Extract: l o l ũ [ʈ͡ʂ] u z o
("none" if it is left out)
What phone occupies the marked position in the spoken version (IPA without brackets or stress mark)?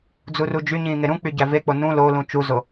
t͡ʃ